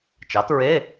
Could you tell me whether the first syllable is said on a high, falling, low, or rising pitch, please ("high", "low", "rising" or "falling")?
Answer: rising